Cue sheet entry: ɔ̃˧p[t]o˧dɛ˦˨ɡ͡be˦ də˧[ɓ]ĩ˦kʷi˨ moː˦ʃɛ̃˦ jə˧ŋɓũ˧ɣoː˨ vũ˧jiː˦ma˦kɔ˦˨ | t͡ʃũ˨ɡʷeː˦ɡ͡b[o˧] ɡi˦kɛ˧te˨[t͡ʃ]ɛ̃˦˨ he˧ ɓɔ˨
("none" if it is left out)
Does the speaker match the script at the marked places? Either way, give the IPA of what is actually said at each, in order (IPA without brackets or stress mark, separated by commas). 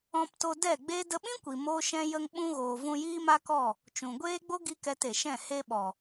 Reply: t, ɓ, o˦, ʃ